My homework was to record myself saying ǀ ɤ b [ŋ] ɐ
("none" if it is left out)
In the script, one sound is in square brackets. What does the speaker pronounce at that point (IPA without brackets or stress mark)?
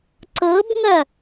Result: ŋ